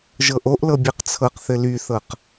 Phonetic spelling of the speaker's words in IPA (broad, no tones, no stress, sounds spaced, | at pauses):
ʒ ɤ ʔ o ʔ l ɤ bʲ ɛ q t͡sʰ ɤ q θ ɘ l y θ ɤ q